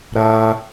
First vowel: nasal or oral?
oral